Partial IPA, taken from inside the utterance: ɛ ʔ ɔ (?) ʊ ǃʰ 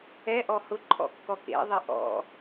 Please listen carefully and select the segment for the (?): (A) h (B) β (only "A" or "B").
A